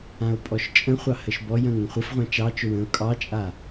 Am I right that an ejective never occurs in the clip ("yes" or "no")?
no